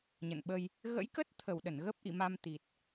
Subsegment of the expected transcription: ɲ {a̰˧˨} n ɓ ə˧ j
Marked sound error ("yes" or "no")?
yes